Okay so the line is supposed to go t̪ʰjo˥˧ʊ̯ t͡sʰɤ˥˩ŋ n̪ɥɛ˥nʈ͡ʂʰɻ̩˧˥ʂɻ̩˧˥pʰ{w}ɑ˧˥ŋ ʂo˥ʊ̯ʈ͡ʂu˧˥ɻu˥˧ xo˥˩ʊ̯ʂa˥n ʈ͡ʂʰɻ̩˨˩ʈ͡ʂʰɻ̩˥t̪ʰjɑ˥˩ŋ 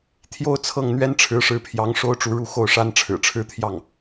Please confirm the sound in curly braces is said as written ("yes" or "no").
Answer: no